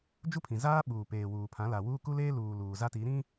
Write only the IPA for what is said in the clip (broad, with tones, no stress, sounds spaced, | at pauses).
d͡ʒ u˦ pʰ ĩ˨ z aː˦ ɓ uː˨ p eː˨ w uː˨ pʰ ã˨˦ l a˨ w uː˦ k u˦ l eː˦ l uː˨ l uː˨ z a˦ t i˨˦ ɾ ĩ˦